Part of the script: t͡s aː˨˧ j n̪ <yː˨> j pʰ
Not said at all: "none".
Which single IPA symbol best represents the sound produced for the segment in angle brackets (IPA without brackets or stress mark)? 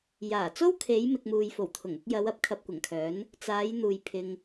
uː˨